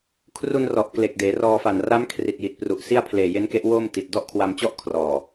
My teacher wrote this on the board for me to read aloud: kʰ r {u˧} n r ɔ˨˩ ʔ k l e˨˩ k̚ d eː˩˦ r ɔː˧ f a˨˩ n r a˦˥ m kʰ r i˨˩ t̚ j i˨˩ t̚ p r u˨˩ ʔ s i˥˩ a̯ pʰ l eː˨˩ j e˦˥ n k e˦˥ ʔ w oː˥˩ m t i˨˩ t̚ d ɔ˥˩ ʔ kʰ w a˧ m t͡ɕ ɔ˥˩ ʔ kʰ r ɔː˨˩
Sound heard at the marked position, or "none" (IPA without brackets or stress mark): u˧